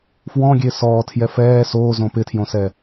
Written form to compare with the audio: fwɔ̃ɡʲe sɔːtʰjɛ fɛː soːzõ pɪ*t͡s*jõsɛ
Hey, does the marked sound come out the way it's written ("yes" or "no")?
no